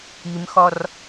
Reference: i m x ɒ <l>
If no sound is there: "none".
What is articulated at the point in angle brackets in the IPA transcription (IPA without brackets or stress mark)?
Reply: r